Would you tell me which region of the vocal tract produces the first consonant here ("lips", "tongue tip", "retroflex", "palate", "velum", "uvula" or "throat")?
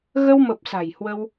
velum